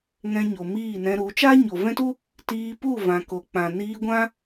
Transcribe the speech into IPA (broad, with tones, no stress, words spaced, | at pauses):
ŋɛ̃˧ɲo˨ miː˦˨nɛ̃˧ɾu˨˦ t͡ʃa˦ɲo˨vɛ̃˦tu˦ | tiː˧pu˦˨vã˨ ko˨k͡pã˨ niː˧ɡʷã˦